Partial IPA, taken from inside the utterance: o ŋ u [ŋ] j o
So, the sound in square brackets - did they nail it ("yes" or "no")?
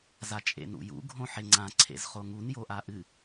no